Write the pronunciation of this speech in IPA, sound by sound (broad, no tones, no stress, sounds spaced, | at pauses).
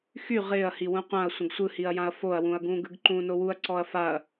x y ʁ ɪː ɐ̯ h i w ũ qʷ ã ɐ̯ sʷ ə̃ ɡ sʷ ɯ h i ɐ̯ j ã ɐ̯ f o ɐ̯ w ũ ɐ̯ ɡ ũː ɡ ɯ ɡ ǃ ũː n o w u ɐ̯ ǀ ɔ ɐ̯ f a ɐ̯